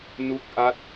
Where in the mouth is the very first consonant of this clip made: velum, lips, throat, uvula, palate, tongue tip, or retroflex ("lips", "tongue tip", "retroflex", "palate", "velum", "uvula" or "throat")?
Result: tongue tip